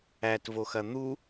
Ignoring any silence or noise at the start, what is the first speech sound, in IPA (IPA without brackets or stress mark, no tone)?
æ